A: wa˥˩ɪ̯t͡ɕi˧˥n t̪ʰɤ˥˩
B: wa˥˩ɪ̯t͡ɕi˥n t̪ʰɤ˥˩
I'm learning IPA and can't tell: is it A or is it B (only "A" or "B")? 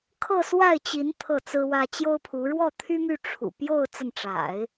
A